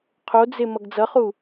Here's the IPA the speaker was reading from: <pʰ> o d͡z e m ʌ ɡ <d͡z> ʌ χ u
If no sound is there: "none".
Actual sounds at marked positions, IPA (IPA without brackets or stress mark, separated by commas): qʰ, d͡z